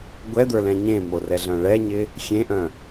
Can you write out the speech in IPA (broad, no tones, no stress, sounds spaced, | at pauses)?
ɡʷ ɛ d̪ ə˞ l ɛ̃ ɲ ẽ m o r ɛ ɮ œ̃ ɭ ɛ ɲ ɪ | xʲ ẽ ʔ œ̃